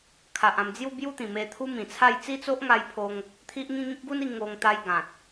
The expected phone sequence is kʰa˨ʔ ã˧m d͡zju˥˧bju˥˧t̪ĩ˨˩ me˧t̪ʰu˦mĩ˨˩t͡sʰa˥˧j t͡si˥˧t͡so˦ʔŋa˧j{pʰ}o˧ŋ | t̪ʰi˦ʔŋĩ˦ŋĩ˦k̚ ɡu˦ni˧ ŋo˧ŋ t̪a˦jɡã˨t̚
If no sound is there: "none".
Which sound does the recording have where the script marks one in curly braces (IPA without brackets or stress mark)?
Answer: pʰ